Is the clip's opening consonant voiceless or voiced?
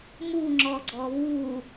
voiced